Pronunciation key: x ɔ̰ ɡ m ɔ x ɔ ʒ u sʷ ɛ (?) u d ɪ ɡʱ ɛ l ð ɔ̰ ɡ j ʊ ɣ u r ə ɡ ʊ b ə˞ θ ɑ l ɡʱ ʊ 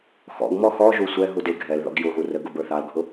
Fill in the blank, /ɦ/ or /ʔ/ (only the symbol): ɦ